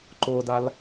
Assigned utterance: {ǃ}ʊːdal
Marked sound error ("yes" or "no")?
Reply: no